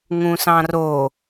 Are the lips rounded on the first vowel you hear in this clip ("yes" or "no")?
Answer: yes